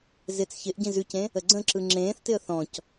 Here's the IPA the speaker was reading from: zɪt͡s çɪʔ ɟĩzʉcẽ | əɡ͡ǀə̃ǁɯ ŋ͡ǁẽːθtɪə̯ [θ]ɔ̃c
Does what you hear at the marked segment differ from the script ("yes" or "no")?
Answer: no